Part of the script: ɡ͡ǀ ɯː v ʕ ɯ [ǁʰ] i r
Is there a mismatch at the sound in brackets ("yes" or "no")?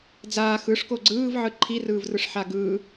yes